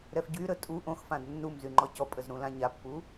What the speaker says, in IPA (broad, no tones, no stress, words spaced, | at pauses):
ɾɛfɟyɾə tʼu ʔõxfãd nːumzy ŋ͡ǃɔcɔpʼəz ɾũlãɲapːu